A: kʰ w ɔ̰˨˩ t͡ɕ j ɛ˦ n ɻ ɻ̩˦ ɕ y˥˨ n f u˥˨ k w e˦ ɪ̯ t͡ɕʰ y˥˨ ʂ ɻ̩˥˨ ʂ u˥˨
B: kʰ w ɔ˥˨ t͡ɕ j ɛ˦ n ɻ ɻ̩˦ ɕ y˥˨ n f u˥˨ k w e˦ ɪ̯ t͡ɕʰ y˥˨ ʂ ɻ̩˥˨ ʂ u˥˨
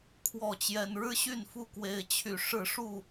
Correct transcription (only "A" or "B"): B